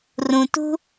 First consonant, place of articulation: alveolar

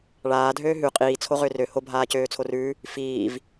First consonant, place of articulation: retroflex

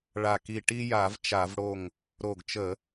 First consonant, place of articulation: retroflex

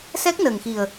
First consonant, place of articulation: alveolar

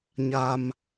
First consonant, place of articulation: palatal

